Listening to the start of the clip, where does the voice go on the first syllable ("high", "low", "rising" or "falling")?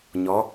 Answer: rising